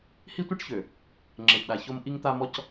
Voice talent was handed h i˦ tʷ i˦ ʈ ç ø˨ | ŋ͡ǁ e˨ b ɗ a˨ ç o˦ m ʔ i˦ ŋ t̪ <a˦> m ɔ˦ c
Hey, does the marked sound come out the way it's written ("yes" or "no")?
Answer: yes